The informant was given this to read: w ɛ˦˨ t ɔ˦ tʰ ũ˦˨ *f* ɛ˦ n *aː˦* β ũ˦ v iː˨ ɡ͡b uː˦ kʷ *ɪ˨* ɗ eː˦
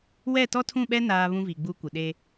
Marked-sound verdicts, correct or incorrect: incorrect: ɓ, correct, correct

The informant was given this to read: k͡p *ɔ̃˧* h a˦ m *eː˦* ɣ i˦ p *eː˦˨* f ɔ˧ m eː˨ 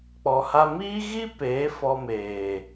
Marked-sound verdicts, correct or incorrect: incorrect: ɔ˧, incorrect: iː˦, incorrect: eː˨˦

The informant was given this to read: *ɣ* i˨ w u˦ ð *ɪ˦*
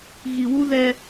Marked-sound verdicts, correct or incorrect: correct, incorrect: ɛ˦

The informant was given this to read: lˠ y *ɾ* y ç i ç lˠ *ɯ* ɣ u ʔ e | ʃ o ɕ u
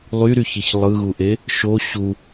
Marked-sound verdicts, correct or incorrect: correct, correct

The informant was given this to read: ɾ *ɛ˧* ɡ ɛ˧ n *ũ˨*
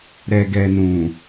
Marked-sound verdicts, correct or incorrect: correct, correct

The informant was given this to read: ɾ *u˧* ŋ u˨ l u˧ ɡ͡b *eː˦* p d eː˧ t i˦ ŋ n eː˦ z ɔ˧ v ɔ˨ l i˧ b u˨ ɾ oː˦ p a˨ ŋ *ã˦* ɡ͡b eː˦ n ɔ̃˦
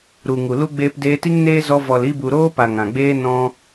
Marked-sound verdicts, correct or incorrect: incorrect: u˨, incorrect: eː˧, incorrect: ã˨

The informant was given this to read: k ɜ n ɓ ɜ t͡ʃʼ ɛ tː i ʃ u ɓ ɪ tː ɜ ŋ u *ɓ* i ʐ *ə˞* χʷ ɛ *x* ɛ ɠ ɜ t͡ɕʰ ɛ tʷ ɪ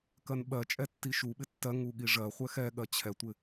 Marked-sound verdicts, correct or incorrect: incorrect: ɠ, incorrect: ɜ, correct

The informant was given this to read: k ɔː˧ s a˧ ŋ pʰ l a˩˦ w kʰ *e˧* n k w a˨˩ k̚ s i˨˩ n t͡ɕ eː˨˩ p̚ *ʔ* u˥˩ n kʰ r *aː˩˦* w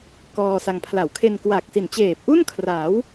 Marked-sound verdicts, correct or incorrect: correct, correct, correct

